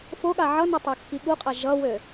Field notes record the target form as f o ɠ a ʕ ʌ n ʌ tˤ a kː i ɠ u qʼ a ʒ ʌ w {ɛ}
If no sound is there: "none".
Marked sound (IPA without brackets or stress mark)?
ø